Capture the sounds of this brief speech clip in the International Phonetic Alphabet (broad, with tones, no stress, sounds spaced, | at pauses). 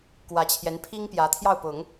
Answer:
k w ä˧˥ t͡ɕʰ j ɛ˧˥ n pʰ i˥ ŋ p j ä˧˥ t̪ʰ j ɑ˥˩ ʊ̯ p ʊ˨˩˦ ŋ